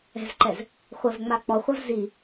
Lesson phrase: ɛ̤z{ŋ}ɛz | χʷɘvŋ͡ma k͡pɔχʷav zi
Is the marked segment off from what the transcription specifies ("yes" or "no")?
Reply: yes